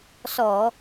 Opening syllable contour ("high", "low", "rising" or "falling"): low